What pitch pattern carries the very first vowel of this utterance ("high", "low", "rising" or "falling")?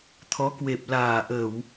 rising